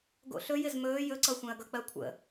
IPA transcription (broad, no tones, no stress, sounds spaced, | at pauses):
ɡ o̰ ɬ ɵ j ɪ z m ɵː j ɵ ǀ ʌ xʷ ɛ̃ ɐ̯ ɡ ʌ k͡p ɜ kʷʰ ə̰